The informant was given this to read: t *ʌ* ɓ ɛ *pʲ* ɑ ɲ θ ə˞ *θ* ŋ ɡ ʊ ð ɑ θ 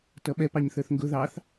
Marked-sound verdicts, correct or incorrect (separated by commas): correct, incorrect, correct